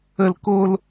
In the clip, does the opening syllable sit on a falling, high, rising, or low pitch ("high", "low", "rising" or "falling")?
low